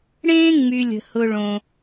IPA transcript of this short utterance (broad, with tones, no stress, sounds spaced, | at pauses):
ɽ ẽː˥ ŋ͡m y˨ lʲ ə̤˩ h ʊ˨ ɭ õ˩